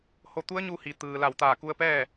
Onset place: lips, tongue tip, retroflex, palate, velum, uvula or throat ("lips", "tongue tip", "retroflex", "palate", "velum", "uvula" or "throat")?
throat